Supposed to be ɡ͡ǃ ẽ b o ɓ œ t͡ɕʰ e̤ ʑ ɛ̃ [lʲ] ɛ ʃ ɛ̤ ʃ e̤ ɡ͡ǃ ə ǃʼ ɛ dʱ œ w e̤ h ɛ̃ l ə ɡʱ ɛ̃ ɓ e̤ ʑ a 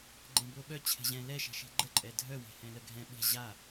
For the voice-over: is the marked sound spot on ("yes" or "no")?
no